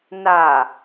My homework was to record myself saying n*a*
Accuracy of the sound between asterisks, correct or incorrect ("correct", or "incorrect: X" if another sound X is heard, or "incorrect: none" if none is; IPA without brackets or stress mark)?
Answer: correct